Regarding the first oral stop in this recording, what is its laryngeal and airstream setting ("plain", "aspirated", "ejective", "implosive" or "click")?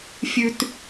plain